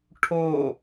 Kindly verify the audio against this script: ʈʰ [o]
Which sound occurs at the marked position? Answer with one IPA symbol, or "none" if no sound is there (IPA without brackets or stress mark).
o